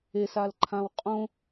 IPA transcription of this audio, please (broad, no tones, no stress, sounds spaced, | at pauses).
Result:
e s a l ǃʰ ã w qʼ õ